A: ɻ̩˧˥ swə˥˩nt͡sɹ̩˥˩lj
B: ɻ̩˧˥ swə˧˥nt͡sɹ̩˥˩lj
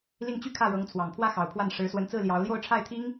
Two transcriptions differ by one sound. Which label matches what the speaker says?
B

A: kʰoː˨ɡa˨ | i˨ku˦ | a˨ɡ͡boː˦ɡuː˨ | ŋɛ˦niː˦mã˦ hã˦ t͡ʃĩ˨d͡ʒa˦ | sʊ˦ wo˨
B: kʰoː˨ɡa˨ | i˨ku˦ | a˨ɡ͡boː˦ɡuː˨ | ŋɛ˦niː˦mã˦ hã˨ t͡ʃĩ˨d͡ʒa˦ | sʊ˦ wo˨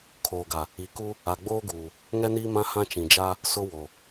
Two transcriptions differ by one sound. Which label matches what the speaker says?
A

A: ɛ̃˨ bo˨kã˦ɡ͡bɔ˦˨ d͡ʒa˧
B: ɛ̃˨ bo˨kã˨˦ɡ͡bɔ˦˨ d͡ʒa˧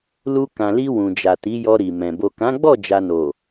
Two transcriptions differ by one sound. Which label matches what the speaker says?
B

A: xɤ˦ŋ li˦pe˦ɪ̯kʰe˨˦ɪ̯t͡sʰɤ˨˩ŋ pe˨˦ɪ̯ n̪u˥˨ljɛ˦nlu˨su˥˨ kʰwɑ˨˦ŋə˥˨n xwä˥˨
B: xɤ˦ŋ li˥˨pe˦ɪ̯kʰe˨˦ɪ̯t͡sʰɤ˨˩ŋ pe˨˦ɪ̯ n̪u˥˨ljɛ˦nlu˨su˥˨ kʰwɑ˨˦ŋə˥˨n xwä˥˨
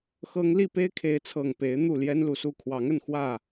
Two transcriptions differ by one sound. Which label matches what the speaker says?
B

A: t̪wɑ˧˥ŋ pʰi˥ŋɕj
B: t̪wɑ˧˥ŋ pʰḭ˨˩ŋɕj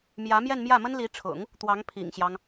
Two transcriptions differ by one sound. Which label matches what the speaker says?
B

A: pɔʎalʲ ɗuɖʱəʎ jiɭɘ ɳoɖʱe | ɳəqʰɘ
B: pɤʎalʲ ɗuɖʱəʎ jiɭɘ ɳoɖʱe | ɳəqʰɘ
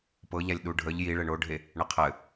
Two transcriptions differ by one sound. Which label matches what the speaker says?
B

